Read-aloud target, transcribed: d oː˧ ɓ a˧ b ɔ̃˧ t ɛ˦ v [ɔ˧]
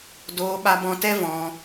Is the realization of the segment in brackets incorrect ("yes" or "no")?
yes